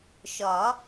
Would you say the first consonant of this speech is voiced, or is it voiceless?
voiceless